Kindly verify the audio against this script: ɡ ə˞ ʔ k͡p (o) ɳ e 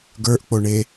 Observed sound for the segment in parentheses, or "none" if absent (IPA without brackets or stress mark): o